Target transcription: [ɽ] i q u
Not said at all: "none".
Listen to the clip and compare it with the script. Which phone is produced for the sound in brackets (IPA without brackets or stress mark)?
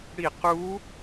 ɽ